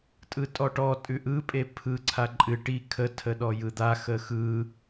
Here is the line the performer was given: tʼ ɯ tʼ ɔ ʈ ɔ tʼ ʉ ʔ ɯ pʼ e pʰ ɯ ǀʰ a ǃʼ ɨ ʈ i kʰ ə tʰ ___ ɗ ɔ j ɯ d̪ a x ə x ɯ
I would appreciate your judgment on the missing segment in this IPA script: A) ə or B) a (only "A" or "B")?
A